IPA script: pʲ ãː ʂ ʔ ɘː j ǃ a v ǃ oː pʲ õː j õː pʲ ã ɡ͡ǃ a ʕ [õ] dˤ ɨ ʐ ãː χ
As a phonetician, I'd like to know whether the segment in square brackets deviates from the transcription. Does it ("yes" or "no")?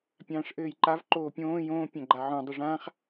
no